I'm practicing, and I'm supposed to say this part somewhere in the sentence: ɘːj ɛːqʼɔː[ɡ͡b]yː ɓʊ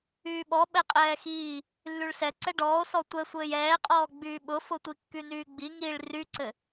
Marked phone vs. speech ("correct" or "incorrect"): correct